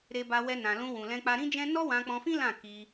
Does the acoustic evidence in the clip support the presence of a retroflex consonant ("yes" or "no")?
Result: no